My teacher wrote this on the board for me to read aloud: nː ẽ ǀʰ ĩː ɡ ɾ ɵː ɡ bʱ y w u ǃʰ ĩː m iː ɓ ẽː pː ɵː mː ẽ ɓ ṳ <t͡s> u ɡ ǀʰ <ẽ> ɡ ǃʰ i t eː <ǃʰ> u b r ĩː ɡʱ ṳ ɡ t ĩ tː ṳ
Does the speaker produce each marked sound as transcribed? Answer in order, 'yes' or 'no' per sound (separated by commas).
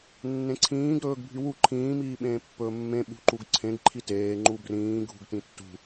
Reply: no, yes, no